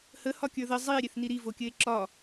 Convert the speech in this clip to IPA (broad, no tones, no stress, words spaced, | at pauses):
həhɒ kʲə˞ðə zˤie̯ɾʲeθ niɾi vokʲɘe̯ǁɒ